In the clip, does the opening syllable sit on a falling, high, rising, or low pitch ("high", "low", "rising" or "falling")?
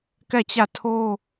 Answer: falling